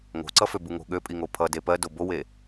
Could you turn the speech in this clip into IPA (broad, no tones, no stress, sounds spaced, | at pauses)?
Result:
ŋ o̤ ǀ ʌ f ø b u ŋ o̤ ɠ ø pʼ i ŋ o pʰ ʌ d e p ɜ d o b o w e